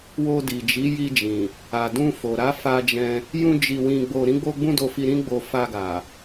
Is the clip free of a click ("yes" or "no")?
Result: yes